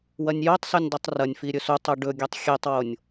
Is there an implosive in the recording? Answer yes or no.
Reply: no